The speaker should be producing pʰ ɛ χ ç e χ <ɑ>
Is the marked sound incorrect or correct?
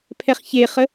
incorrect